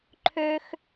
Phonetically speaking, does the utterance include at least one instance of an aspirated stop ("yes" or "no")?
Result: yes